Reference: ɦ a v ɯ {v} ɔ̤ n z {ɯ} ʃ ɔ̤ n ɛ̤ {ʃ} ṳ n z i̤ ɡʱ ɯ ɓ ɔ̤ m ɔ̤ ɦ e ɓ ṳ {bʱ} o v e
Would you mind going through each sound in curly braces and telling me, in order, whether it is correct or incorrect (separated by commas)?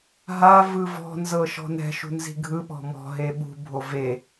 correct, incorrect, correct, correct